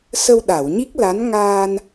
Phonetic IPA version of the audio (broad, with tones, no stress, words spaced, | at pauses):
sə˧wɗa˨˩˨wɲi˦˥k̚la˧˥n ŋaː˧n